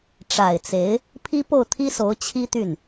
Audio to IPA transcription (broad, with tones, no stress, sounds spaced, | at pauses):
ʈ͡ʂ a˨˩ ɪ̯ t͡s e˧˥ ɪ̯ | pʰ i˥ p o˥˩ ʊ̯ t̪ʰ i˥ s o˧˥ ʊ̯ t͡ɕʰ i˥ t̪ y˥˩ n